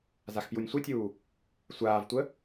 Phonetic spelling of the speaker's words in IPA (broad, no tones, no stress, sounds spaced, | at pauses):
z a x p j u nʲ sʷ ɨ tʲ uː | sʷ aː v tʷ ə